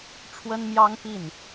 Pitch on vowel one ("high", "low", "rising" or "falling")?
high